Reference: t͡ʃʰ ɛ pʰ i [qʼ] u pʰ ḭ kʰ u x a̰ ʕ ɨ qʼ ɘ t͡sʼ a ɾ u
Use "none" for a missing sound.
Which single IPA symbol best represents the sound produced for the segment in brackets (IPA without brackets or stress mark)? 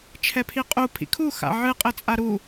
qʼ